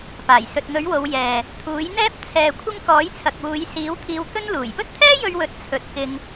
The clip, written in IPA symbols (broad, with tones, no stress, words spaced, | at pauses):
paː˨˩jsɵ˨t̚n̪ɵ˨˥ɥwo˨˧w jɛː˨ | t̪ʰuː˨˥jn̪ɛː˥p̚ t͡sʰɛː˧kʷʰɪ˥ŋ kɔː˨˥jt͡sʰɐ˨k̚wuː˨˧j siː˨˥wt̪ʰiː˧w t̪ɵ˥n luː˨˩jpɵ˥t̚t̪ʰɛː˥jɵ˧ɥ wɵ˧t̚ t͡sʰɵ˨˥t̚kɪ˧ŋ